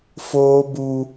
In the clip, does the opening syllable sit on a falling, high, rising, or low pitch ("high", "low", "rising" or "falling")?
high